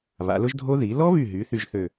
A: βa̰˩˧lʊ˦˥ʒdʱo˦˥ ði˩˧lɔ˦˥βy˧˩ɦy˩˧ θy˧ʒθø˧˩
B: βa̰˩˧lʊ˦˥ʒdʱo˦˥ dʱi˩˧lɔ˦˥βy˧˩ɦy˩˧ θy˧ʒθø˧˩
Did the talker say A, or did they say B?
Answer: A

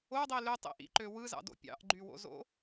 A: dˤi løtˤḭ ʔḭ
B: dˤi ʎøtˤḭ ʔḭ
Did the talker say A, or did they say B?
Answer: A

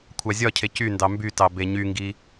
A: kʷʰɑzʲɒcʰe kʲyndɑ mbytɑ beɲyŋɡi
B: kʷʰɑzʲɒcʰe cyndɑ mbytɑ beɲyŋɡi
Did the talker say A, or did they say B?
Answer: B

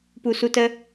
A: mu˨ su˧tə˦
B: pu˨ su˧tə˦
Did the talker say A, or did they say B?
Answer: B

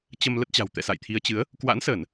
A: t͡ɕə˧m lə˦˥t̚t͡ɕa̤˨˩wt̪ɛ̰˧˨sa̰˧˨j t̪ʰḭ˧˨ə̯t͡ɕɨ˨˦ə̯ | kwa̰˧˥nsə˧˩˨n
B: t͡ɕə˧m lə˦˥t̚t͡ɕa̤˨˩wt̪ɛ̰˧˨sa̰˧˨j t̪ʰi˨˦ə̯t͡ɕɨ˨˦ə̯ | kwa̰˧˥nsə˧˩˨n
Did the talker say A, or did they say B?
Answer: B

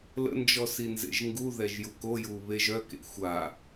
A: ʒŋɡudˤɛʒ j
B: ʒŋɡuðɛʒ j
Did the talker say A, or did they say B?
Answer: B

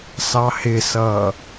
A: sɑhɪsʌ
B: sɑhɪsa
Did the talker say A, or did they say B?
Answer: A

